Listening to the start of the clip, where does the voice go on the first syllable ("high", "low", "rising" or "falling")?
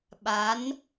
rising